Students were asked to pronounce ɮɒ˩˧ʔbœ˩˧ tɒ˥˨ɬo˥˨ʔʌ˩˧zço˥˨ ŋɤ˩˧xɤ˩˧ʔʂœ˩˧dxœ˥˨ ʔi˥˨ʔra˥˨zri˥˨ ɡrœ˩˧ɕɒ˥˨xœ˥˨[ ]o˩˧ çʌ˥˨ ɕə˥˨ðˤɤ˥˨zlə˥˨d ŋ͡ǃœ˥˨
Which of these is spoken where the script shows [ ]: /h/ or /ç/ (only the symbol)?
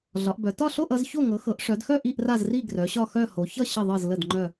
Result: h